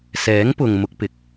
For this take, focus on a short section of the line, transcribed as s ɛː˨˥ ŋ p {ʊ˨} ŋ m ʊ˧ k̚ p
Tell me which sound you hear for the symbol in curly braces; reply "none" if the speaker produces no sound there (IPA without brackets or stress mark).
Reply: ʊ˨